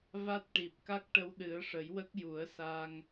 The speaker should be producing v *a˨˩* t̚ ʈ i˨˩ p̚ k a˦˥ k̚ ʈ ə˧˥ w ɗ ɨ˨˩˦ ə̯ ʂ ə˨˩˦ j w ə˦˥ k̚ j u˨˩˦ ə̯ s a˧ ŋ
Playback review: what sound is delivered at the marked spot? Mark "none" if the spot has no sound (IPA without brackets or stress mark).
a˦˥